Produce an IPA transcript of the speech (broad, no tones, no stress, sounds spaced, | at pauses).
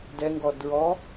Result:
d ɛ ŋ ɡ ɔ d ɹ ɔ